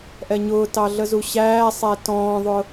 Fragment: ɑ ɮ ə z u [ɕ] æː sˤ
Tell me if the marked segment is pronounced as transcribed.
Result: yes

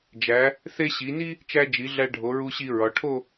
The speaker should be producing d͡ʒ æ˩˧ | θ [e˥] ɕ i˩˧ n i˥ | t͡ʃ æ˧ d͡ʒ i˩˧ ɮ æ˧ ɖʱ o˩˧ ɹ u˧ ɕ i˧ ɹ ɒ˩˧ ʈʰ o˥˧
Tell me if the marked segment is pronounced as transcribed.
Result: yes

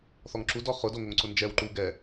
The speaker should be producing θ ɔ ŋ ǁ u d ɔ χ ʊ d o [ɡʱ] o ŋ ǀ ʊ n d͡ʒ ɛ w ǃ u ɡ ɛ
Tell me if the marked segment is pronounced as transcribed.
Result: no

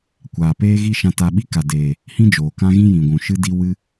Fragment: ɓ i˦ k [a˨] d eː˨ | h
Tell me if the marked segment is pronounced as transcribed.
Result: yes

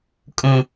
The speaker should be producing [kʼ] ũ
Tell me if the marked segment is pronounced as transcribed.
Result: yes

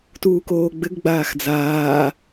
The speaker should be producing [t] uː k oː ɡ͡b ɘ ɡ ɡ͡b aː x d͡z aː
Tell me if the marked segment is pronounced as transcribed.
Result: yes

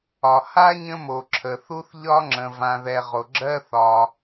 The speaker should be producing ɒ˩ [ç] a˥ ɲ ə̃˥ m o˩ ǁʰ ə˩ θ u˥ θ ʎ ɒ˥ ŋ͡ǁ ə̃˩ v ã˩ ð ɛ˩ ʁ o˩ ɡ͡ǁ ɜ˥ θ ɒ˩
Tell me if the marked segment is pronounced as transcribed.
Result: no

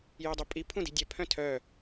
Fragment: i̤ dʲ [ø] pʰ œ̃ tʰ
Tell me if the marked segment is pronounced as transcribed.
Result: no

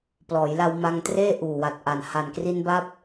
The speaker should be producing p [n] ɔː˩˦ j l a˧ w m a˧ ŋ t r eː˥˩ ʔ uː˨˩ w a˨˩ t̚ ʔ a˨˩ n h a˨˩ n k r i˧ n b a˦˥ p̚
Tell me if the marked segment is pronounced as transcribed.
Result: no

